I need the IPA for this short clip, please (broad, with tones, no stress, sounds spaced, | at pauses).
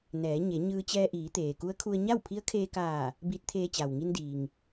n ɛː˩˧ ɲ e˩˧ ɲ ɯː˧ t͡ɕ ɛː˧ ʔ iː˩˧ t̪ eː˩ k u˧˥ ə̯ kʰ u˧ ə̯ ɲ a˥˨ w pʰ i˧˥ ə̯ kʰ eː˧ k aː˧˩ | b i˧˥ t̚ t̪ʰ eː˧ t͡ɕ a˩ w ŋ i˧ n d iː˩ ŋ